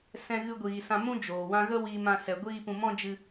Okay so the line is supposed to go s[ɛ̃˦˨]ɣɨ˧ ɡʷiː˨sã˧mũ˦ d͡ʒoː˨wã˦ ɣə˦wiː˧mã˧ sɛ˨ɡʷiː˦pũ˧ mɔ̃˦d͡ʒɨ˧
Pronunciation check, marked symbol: incorrect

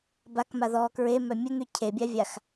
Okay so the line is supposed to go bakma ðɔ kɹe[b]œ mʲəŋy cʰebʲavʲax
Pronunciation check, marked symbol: incorrect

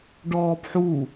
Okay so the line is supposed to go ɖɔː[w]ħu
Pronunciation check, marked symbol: incorrect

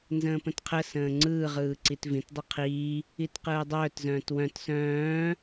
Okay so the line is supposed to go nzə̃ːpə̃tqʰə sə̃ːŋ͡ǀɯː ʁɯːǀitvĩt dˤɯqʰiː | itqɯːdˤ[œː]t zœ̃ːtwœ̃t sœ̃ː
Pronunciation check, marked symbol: correct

